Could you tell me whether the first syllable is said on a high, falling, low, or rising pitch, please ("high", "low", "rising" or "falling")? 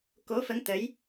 rising